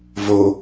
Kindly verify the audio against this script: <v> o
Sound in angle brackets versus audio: correct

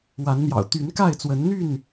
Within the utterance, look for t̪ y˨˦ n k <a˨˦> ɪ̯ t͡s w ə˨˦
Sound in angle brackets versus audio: incorrect: a˥˨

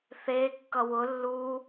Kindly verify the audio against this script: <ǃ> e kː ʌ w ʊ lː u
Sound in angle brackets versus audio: incorrect: θ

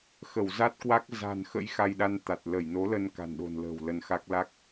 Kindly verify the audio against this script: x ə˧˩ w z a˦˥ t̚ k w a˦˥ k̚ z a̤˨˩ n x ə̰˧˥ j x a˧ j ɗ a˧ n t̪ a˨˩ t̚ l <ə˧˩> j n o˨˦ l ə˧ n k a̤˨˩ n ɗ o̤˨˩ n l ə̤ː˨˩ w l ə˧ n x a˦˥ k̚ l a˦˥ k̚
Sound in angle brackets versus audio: correct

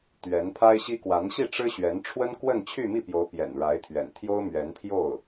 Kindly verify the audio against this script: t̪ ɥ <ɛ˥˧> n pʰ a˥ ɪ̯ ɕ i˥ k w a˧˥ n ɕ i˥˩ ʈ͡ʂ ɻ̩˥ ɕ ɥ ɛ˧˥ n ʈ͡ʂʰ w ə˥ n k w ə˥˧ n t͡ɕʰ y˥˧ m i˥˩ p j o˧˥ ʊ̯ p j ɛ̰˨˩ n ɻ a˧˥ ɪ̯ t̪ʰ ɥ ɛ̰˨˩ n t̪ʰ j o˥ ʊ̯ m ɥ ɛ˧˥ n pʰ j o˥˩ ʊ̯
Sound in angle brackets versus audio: incorrect: ɛ˧˥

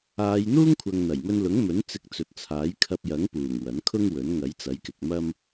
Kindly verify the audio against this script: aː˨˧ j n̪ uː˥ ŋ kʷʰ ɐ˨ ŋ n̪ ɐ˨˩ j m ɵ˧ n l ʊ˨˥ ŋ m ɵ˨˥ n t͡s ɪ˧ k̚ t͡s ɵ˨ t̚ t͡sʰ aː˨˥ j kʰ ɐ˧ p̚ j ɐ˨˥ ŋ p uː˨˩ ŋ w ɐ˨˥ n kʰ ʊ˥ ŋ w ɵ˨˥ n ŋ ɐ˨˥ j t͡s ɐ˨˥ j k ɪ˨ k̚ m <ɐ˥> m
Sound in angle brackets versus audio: correct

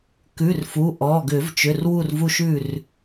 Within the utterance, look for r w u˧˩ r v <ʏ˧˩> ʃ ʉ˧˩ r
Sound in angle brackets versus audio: incorrect: u˧˩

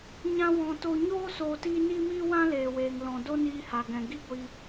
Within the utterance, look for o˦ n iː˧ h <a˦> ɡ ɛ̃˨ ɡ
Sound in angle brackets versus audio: incorrect: a˨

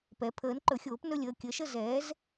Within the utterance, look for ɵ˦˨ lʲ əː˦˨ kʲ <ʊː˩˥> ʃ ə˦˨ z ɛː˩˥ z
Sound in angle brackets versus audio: incorrect: əː˩˥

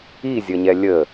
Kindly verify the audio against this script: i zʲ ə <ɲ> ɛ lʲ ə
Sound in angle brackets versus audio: correct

